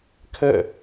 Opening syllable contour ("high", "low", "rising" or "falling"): falling